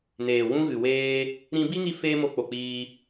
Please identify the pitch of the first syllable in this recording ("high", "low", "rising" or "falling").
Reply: low